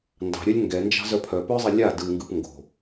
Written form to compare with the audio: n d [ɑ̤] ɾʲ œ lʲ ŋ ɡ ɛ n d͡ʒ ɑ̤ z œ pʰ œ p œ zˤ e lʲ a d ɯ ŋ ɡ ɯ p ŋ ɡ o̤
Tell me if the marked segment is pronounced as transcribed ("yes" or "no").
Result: yes